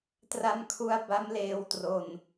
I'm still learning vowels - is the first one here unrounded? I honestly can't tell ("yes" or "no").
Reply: yes